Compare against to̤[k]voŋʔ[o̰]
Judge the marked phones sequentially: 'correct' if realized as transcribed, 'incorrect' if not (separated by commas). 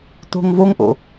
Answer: incorrect, correct